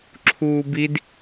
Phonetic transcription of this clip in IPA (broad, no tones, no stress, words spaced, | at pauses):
ǁʰuːbid